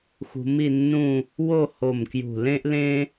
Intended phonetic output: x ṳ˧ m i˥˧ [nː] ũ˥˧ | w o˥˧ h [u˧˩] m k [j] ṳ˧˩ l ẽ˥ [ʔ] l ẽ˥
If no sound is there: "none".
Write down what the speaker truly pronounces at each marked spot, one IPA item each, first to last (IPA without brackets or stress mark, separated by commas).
nː, o˧˩, j, ʔ